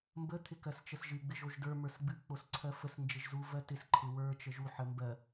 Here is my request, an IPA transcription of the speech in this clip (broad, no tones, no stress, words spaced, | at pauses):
mbə t̪ʰɪkɜst͡ʃəsʒɨ ɡ͡bɪʒoʒdə˞ mə˞sɡ͡bɨ k͡posǀʰɜfəs nd͡ʒɪʒzu vɜtɪs ǃʰɪwə˞ t͡ʃəʒu ħəmbɜ